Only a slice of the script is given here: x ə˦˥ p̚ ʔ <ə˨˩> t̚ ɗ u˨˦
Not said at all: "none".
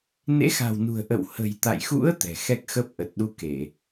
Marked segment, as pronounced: ə˨˩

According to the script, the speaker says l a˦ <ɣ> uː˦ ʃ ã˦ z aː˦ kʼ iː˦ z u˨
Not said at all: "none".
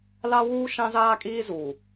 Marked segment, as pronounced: w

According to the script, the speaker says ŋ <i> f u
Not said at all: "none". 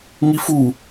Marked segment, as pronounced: i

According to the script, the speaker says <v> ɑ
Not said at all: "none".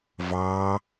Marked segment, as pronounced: v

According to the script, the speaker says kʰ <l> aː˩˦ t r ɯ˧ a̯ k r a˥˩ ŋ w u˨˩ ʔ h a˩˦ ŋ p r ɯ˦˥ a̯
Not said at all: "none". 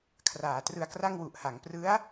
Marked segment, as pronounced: r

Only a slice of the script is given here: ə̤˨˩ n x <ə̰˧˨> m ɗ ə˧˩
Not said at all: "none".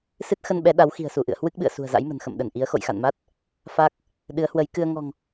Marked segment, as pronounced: ə̰˧˨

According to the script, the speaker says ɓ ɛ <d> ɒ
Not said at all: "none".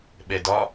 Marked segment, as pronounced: d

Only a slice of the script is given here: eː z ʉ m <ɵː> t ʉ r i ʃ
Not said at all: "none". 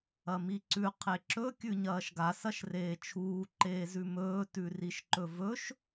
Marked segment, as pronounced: ɵː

